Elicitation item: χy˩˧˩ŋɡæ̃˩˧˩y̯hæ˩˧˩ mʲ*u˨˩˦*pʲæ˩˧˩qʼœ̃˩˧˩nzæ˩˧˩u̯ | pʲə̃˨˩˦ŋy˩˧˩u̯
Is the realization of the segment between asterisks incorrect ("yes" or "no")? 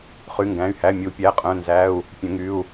no